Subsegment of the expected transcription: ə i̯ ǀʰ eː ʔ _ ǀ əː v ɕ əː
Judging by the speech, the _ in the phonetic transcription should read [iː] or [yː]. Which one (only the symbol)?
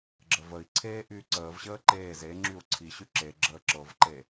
yː